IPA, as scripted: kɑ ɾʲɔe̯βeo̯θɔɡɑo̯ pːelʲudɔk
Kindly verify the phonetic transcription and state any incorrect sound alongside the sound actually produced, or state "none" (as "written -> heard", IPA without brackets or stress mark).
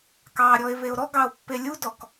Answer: θ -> ɾ